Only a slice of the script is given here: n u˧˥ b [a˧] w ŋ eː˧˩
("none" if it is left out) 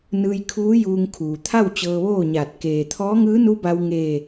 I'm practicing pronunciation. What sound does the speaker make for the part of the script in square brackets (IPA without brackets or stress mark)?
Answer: a˧